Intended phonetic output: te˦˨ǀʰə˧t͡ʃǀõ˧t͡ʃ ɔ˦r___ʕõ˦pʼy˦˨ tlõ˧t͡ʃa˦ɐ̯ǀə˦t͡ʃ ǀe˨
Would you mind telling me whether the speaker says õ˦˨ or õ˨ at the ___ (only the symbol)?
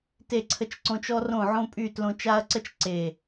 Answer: õ˦˨